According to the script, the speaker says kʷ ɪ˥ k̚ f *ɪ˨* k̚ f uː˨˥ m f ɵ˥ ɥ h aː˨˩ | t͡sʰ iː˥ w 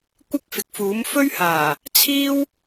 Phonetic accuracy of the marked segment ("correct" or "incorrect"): correct